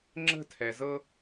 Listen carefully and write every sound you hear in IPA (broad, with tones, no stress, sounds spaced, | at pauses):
ŋ͡ǁ ə̤˦ tʰ ɛ˨ z ɤ˦